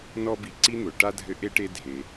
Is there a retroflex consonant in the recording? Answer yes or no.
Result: yes